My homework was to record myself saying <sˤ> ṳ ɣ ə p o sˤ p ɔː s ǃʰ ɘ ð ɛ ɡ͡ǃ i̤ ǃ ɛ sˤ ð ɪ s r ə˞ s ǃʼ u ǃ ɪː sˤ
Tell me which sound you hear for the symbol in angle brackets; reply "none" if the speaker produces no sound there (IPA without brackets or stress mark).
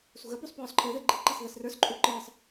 s